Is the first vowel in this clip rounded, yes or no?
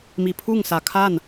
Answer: no